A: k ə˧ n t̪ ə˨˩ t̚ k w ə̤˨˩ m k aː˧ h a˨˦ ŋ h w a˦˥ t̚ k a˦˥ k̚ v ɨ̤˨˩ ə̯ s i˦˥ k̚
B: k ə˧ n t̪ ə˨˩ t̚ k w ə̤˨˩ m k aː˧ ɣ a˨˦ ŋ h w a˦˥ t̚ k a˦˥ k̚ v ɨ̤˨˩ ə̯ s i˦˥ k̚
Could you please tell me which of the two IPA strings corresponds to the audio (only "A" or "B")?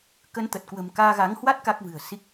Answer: B